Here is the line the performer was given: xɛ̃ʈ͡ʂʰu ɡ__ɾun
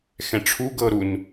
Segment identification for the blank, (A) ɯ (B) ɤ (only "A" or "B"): B